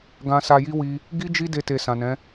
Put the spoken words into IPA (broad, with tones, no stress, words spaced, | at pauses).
ɡã˧sa˧ji˦ wi˧ | ɡi˦ d͡ʒi˦ de˧te˨ sã˨nɛ̃˨˦